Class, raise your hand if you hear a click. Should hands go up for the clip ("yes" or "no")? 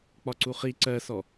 yes